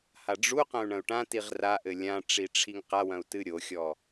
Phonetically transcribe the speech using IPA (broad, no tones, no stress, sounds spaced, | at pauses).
h a ɖ͡ʐ u q ɐ̃ u̯ ɳ ɐ̃ u̯ ʈ ã t i ʁ r a ʔ ɘ lʲ ã ʈ͡ʂ i ʈ͡ʂʰ i ŋ q a w ɐ̃ u̯ t ɨ ɾʲ o xʲ ɔ